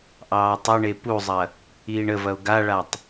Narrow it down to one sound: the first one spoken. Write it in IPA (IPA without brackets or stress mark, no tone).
ʔ